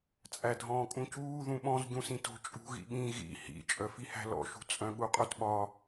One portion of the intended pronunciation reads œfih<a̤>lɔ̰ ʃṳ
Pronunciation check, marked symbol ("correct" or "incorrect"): incorrect